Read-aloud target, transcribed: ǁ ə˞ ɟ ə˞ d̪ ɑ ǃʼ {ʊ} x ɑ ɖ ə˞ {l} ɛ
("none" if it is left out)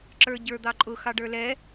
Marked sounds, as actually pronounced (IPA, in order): ʊ, l

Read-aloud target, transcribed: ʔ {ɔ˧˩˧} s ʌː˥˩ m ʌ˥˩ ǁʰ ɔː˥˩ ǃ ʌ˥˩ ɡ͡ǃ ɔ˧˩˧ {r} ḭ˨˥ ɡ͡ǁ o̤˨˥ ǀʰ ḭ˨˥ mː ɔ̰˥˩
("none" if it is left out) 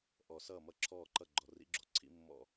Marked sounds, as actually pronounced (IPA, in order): ɔ˧˩˧, r

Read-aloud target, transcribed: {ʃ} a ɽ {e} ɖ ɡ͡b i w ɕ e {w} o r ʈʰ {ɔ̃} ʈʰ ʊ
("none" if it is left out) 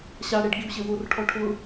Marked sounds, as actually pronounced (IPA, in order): ɕ, e, w, ɔ

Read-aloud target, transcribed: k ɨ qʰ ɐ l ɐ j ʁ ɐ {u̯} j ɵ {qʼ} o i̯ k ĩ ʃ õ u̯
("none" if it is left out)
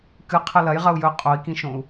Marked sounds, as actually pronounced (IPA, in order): u̯, qʼ

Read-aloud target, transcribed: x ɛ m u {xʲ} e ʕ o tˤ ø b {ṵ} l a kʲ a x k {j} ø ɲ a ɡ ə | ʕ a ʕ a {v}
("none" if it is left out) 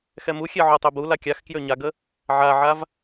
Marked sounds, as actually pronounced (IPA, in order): xʲ, u, j, v

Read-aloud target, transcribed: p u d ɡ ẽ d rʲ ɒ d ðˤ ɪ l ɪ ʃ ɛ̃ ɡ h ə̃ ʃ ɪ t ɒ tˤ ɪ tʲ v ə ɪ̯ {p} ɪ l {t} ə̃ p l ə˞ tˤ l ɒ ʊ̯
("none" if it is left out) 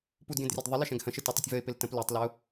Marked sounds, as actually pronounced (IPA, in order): p, t

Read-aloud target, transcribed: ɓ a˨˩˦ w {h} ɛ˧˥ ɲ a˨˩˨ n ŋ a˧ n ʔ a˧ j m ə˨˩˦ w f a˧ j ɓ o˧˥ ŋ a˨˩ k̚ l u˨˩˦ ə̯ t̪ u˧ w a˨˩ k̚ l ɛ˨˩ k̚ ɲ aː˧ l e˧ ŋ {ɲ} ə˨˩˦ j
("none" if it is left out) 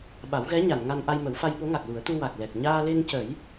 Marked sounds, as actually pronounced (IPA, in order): ɣ, c

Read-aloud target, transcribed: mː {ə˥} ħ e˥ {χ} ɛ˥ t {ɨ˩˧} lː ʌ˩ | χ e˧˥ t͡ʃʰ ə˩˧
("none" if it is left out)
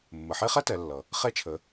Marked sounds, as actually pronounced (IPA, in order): ə˩, χ, ɛ˩˧

